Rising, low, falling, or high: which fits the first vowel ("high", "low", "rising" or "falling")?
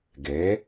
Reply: rising